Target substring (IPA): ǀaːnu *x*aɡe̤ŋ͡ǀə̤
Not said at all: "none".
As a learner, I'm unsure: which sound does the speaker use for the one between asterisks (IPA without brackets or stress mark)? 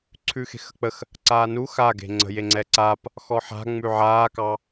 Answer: x